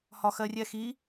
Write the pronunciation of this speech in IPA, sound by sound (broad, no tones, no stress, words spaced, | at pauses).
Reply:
hɒxɜrʲɛxi